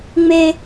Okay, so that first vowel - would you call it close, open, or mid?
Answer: mid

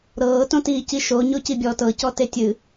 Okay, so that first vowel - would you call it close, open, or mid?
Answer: mid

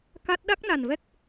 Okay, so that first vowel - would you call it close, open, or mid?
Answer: open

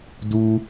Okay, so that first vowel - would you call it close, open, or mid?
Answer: close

